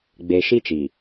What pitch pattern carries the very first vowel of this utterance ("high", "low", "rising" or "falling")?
low